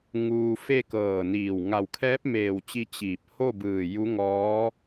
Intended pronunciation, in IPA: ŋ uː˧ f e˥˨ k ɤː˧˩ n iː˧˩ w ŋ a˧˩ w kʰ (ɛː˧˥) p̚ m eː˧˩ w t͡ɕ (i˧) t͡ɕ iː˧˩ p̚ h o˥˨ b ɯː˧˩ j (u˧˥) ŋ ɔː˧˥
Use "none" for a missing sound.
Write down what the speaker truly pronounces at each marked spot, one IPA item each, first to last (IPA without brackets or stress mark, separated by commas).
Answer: ɛː˧˥, i˧, u˧˥